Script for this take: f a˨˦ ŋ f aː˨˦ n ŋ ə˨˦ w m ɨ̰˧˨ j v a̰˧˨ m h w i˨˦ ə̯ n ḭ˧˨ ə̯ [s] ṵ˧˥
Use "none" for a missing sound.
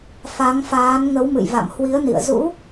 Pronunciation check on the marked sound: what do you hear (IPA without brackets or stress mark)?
z